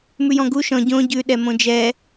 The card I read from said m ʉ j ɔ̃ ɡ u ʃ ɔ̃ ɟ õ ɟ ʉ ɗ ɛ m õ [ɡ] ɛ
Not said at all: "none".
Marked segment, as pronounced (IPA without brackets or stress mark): d͡ʒ